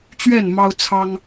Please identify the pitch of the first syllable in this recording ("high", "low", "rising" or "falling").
falling